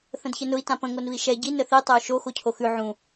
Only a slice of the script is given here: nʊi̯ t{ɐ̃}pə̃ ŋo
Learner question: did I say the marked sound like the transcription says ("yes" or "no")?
no